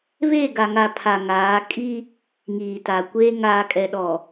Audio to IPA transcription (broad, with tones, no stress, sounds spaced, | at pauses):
β eː˦˨ ɡ a˨ ŋ a˨ pʰ a˨ ŋ aː˨˦ kʼ i˦ | ŋ iː˨ t a˨ kʷ eː˦ ŋ aː˨ kʼ ɛ˨ ɗ ɔ˨